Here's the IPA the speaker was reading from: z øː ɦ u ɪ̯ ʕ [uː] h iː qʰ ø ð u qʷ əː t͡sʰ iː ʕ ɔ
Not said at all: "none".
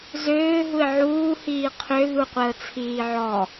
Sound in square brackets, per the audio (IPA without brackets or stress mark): uː